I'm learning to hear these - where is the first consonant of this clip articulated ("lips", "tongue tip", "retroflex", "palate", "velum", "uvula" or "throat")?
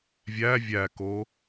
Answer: lips